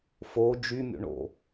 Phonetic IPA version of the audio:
f o d͡ʒ y mʲ o̰ ɳ o̰

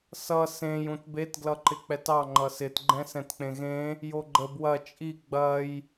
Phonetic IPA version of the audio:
s ʌ s ẽ j ũ t b e t ɡ l ʌ ǃ ɪ k͡p ɛ t ɑ ŋ͡ǃ ʌ s ɪ t ɡ͡ǃ ɛ̃ s ɛ̃ t k͡p ẽ ɣ ẽ | j o ɡ͡ǃ ə b w ɐ t͡ʃʼ i ɡ͡b ɐ j

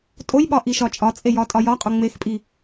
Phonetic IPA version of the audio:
tʼ o j ɓ ɒ ʔ i ʃ ɒ t͡ʃʼ ɒ t͡sʼ e j ɒ tʼ ɒ j ɒ qʼ o ŋ͡m e x pʼ i

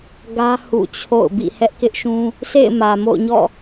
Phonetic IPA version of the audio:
ɡ ä˦ h ṵ˦˨ t͡ɕʰ o̰˦˨ ʊ̯ b ḭ˦˨ h ɛ˦ ʔ k ɪ˦ ʔ ʃ ũ˦ | s ḛ˦˨ ɪ̯ m ä˨ m o̰˦˨ ʊ̯ ɲ ɔ̰˦˨

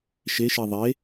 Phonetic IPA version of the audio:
ʃ e ʃ i ðˤ e

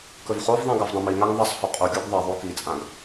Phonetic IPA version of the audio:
k ɵ v χ o v ðˤ ẽ ɡ a v dˤ ɐ̃ m i ŋ a ŋ ðˤ ɐ sˤ h ɵ qʼ u ɡʲ u ɡ ðˤ ɐ ðˤ o k i t͡sʼ ã ɡ

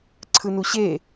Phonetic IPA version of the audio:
ǀʰ ɯ n u ɕ e

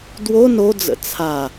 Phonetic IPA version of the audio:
d w o n o d͡z ə̰ t͡sʰ a

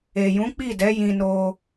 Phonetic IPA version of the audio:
e˨ j ũ˨˦ k͡p i˦˨ d ɛ˨˦ j ĩ˧ n o˧

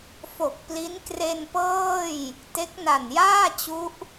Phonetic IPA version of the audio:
f o˨˩ k̚ p l i˦˥ n k r e˧ n p ɤː˥˩ j | t e˦˥ k̚ n a˨˩ n j aː˥˩ t͡ɕ u˦˥ ʔ

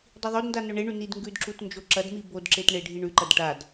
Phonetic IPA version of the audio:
dˤ i ðˤ o d n d a n ɵ ɳ e ɳ ʉ n i d ŋ ɡ ʉ d ǁ u t n d͡ʒ o ǁ ɐ d m i b o d ǁ e t ɳ e ɖʱ i ɳ ʉ ǃ ɐ d ʈ a d

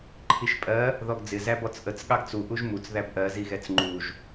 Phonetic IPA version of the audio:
ǃʰ i ʃ pʼ ɜ | ð ɔ ɡ d͡z ɪ z æ b ɔ t͡s ʔ ə t͡s ɠ ɑ ɡ t͡s u ʔ u ʒ m u t͡s ð æ b ʔ ɜ z i ɣ ɛ t͡s ŋ͡ǃ u ʒ

